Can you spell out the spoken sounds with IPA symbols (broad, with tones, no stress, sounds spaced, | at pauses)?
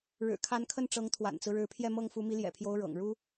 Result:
ɻ ɻ̩˨˩ kʰ a˧˥ n kʰ ə˥˩ n ʈ͡ʂ ɤ˧˥ ŋ t̪ʰ w a̰˨˩ n t͡s ɹ̩˦ ɻ ɻ̩˧˥ pʰ j ɛ˥˧ m ɤ˥˩ ŋ f u˧˥ m i˧˥ l j ɛ̰˨˩ pʰ j o˧˥ ʊ̯ ɻ ɤ̰˨˩ ŋ ɻ u˥